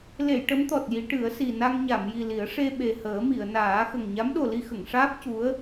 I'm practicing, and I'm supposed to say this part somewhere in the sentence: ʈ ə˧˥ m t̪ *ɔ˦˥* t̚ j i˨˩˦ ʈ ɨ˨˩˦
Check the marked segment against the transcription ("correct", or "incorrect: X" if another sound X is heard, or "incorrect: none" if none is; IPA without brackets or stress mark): incorrect: ɔ˨˩